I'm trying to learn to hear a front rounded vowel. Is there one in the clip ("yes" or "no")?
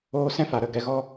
no